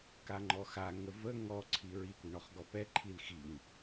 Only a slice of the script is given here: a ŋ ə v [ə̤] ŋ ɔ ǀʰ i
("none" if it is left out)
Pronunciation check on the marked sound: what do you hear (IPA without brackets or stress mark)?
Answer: ə